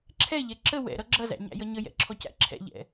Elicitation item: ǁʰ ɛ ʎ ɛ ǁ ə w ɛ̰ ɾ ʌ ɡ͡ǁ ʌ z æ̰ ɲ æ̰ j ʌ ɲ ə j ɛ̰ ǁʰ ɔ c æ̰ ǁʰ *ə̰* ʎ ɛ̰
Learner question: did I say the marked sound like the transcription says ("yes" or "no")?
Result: no